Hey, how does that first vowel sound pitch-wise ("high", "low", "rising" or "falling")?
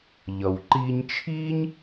low